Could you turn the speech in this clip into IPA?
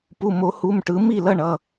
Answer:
pu˩˧˩mo˨˩˦hu˩˧˩mʈɯ˨˩˦ mi˥˩lʌ˥˩ɳʌ˩˧˩

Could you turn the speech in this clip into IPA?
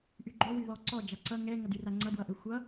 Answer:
ʔyɡ͡ǃø wyðɔǀɔ d͡ʒaǀʌ ŋɛ ŋʌdyraŋ͡ǀʌ dwʌʔøxʷʌ

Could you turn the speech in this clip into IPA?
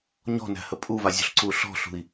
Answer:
ɲɔ̤næ̤hə pʼuvazʲṳɬǀuː ɬɔ̤ɬṳi̯

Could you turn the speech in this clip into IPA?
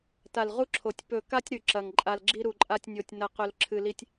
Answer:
ta˨lʁu˦ǁʰo˨tʲ pɵ˨ka˦tʲ ɾʉ˨ ǁɐ˨ŋ ǃʼa˨lɡ͡ǁi˦ ɾu˨ǃʼa˦tʲnʲo˨tʲ nɐ˨qɵ˨l ǁʰɨ˨li˦tʲ

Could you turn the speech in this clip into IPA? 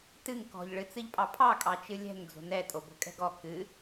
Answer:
tɨŋ kɔ̤ʎ ɭɨt͡sɨʎpʼɑpʰɑ kʼɑt͡ʃɨlʲɛ̤ŋ d͡zo̤nɛ tʼobo̤kʼɛ̤ɡɔ kɨ

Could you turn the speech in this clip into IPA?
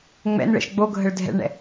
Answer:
ŋ͡mɛ̰nɭɛ̰ʃ ɡ͡boɡʱəɭ dʱɛ̰ɭɳɛ̰

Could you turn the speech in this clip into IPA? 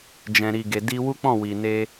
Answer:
d͡ʒɛ̃˨ɾi˨ɡe˨ di˧wu˦k͡pɔ̃˦˨ wi˨ne˧

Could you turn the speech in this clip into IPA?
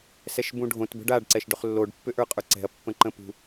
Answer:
sɛʃbũɖʱõt bə̤ɖaɖ ǀɛʃɖʏχlːoɖ pːʏʔə˞qʼə˞ǀɛ̤ɐ̯ pːə̃ǃə̃pṳ

